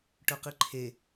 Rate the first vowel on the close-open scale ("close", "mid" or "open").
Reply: mid